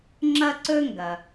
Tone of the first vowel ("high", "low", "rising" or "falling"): high